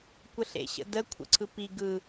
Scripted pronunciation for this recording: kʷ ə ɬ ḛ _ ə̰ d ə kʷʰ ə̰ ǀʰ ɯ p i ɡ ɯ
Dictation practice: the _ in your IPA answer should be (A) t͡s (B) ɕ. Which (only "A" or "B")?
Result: B